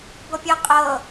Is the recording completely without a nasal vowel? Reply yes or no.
yes